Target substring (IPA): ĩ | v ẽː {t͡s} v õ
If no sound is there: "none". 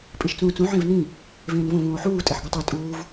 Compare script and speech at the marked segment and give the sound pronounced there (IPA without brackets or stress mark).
n